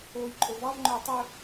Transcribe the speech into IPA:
oː j ǃʼ o v ɑ v ŋ͡ǃ œ j tˤ ɵ

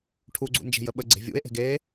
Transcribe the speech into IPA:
ʈʰ u ɡ͡ǀ ṵ n d͡ʒ e̤ j ə ɓ ə ɡ͡ǀ e̤ vʲ ṵ e̯ ʔ e̤ ɡ e

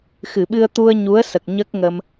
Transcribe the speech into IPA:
x ɨ˨˩˨ ɓ ɨ˧ ə̯ t̪ u˧ ə̯ ɲ u˧˥ ə̯ s ə˨˩ k̚ ɲ ə˦˥ k̚ ŋ ə˧ m

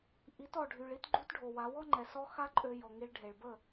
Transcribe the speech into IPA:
ʔ i˨˦ t ɔ˨ ɖʱ y˨ ɭ i˦ t ɡ͡ǃ u˦ t ɖʱ o˨ w a˨˦ w ɔ˦ ŋ͡ǃ ɛ˨ s ɔ˦ x a˦ ǃʼ ø˧ j ɔ˨ ŋ i˧ ɭ ɖʱ e˨ ɭ b ə˦˨

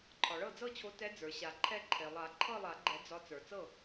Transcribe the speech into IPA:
ǃʰ ɒ˩ ɭ ɤ˥˩ d͡z ɤ˥˩ t͡ɕʰ o˨˦ t ɛ˨˦ d͡z ə˞˩ ɕ a˨˩˦ ǃʰ ɛ˥˧ ǃʰ e˩ lˠ a˨˩˦ ǃʰ ɤ˥˧ lˠ a˨˩˦ ɡ͡ǃ ɛ˨˩˦ d͡z ɒ˨˦ t͡s ə˞˩ t͡s ɤ˥˩

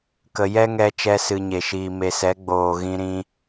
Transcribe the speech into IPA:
k ə˧ j ɛ˦ ŋ ɛ˧ t͡ʃ ɛ˦ s ɨ˧ ɲ e˨ ʃ iː˨ m e˨ s ɛ˨˦ ɡ͡b oː˨ ɣ ĩ˧ ɾ ĩ˧

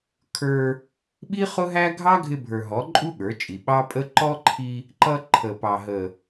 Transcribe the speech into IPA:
kʰ ə˞˧ | ɓ i˦ χ ʊ˦ ɦ æ˦ ɡʱ ɑ˦ ɡʱ ɪ˧ bʱ ə˞˨ ɦ ɔ˨˦ ǃʼ u˦ ɠ ə˞˨˦ t͡ʃʼ i˨ ɓ ɑ˦ pʼ ə˦ ǃ ɔ˦ ǃʰ i˧ | ǃ ʌ˦ ǃʰ ə˨ p ɑ˨ ɦ ə˨

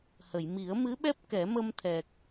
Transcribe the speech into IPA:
h ə˨˩˨ j m i˨˩˦ ə̯ m ɨ˧˥ ɓ ɛ˦˥ p̚ k ɛ˨˩˦ m ə˧ m t̪ʰ ɛ˨˩ k̚

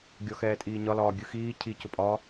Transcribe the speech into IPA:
ɡʲ ɔ x ɛː tʼ iː ɲ ɒ l ɒː ɡʲ ɯ x iː cʰ i c ʊ pʼ ɒː

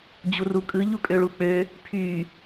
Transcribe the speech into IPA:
d͡ʑ u r u kʼ ɯ ʎ u kʼ ø ɭ u k͡p ø | pʰ y

